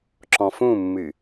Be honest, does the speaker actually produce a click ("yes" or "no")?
yes